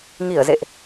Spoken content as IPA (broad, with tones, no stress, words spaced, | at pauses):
ŋi˧˩ə̯zḛ˧˨ʔ